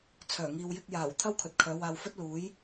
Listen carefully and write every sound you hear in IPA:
t͡sʰ œː˨˩ ŋ iː˨ w j ɪ˧ k̚ j aː˨˩ w t̪ʰ ɐ˥ w kʰ ɵ˨ t̚ kʰ œː˨˧ w aː˧ w f ɵ˥ t̚ l uː˨˥ j

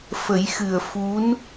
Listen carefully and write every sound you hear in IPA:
f ə˨˩˦ j x ɨ˨˩ ə̯ f u˧˥ n

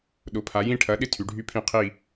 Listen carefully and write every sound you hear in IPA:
ɗ ʊ˨˥ pʰ a˨˥ j ĩ˥˧ ʈʰ ɐ˨˥ ɗ ɪ˥˧ tʰ y˨˥ ɖʱ y˥ pʰ ĩ˥˧ qʰ i˥˧

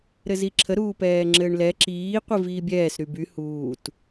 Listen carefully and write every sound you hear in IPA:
ɾ ɘ z i ǁʰ ə ɾ uː p ɛː ŋ͡ǁ ɘː ɳ l ɛ ǁ iː qʷ i v iː bʲ ɛː s ɾ y b y h uː t

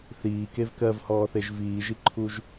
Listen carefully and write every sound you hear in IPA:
θ iː k e v k ɜ v h ɔː θ e ʒ v iː ʒ i ǃʰ u ʒ

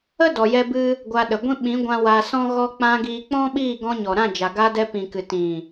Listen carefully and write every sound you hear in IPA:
ə˦ d ɔ˨ j ɛ˧ b ɨ˧ | ɡʷ a˧ ɗ ə˨ ɡʷ ĩ˦ ɓ ĩ˨˦ ɡʷ ã˧ w a˧ s ɔ̃˦ ɣ ɔ˧ k͡p ã˧ ɡ iː˧ k͡p ɔ̃˦ ɓ iː˦˨ ɡ ɔ̃˧ ɲ ɔ˨ ɾ ã˦˨ d͡ʒ a˨ ɡ a˧ d ɛ˧ p ĩ˨ k ɨ˨ t ĩ˨

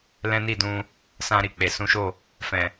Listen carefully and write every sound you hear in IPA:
l ɛ̃˦ n i˦˨ d ũ˧ | s ã˧ ɾ i˨ k͡p e˨ s ũ˨˦ ʃ o˦˨ | f ɛ̃˨

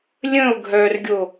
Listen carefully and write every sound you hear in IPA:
lʲ ə̃ ʊ̯ ɡʱ œ r ɡʲ o

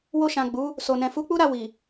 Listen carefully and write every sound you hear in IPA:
w o˧ ʃ ã˨ ɡ͡b u˨˦ | s o˨ n ɛ̃˨ f u˨˦ k͡p u˦ ɾ a˦˨ w i˨

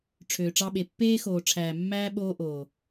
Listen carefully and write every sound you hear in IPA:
ʈ͡ʂʰ øː˨ ʈ͡ʂ ɑ˧ ɓ e˨ pː eː˦ x oː˨ ʈ͡ʂʰ æː˨ mː æː˦ ɓ oː˦ ʔ oː˨

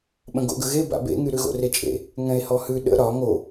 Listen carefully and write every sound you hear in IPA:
ɓ ə̃ ɡ o̰ ɡ ə ɣ e b a̰ b ḛ ŋ y ɾ ʉ ɣ o̰ r e t͡ʃʼ ḛ | ŋ ɛ̃ e̯ h ɔ h ʉ ɗ ə̰ ɾ ɒ ŋ o

